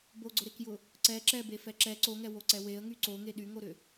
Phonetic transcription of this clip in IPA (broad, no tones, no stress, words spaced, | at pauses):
boɡ͡ǀʊɾekjʊ | ǀɛ ǁɛbefɛ ǁɛ ǀoŋɛwoǀɛ weə̯ŋy ǀoŋe ɗyŋoɾʏ